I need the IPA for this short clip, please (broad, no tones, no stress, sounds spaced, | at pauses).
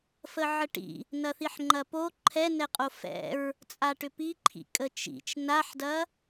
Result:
f ə ʕ ə ʈ ḭ | n ɐ θ i ħ ŋ͡ǃ ɐ p o ǃʰ ɛ n ɛ qʼ o f ɛ̰ ɹ | t͡sʼ a ʈ ʏ p i ǃʰ ḭ kʼ ə t͡ʃ ḭ t͡ʃ n a ħ d ɐ